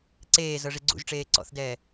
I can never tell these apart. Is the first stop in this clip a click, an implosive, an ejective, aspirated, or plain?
click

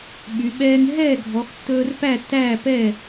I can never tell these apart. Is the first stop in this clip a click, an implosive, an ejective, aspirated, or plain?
implosive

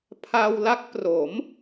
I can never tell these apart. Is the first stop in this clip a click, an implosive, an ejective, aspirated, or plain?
aspirated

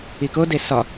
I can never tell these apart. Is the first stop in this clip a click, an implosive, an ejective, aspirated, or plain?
plain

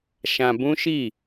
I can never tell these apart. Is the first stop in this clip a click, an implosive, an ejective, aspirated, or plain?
plain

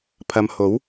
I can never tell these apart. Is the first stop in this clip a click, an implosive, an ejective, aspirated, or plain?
aspirated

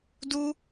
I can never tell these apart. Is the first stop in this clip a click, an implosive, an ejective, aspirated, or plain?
plain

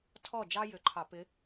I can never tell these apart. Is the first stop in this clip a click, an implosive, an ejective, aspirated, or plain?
aspirated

